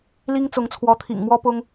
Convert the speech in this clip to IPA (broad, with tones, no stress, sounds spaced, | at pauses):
l i˥ ŋ t͡s ʊ˧˥ ŋ t͡sʰ w ɔ˧˥ t̪ʰ ḭ˨˩ ŋ m w ɔ˥ p ʊ˥ ŋ